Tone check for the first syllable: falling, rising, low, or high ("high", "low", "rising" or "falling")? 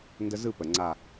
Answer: high